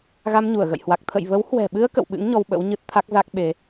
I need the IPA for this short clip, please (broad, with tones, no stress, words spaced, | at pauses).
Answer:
ɣa˧mɲu˧˩ə̯ɣə̰˧˨jhwa˨˩k̚ t̪ʰə̰˧˨jvə˨˦whwɛ̤˨˩ɓɨ˧ə̯ kə̰˧˨wɓɨ̰˧˥ŋ ɲɔ˧wɓə̰˧˥wɲɨ˦˥t̚ t̪ʰa˦˥k̚ za˦˥k̚ ɓe˨˦